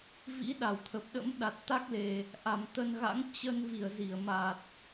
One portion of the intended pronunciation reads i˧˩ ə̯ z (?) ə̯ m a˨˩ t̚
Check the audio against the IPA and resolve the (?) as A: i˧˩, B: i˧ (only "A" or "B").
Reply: A